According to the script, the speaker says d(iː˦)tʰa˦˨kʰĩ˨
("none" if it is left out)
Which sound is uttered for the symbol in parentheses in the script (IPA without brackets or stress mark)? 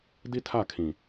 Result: i˦